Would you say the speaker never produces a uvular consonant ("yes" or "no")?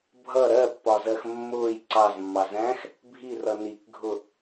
yes